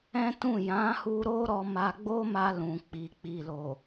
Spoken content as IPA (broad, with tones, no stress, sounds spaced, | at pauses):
ɛ̃˦ t ũ˦˨ j ã˨˦ h u˧ ɾ o˦ ɾ ɔ˧ m a˧ ɡ͡b o˦ m a˧ l ũ˨ k͡p i˨ k͡p i˨ l o˨